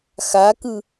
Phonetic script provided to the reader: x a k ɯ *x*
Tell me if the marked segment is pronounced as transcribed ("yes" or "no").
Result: no